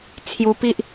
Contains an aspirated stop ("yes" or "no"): yes